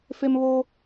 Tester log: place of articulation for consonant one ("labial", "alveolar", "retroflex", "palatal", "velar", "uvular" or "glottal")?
labial